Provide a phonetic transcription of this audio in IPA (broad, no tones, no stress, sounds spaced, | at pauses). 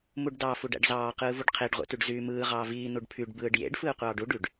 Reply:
m u ɖ d ɑ f u ɖ æ̰ ɖ z ɑː q ɯː v u ɖ qʰ e ɖ ʁʷ ḛ t y ɖ z yː m ɯː ʁ ɑː v iː n u ɖ pʰ y ɖ b ɯː ɖ j ḛ ɖ f ɯː qʷ ɑː ɖ u ɖ y ɖ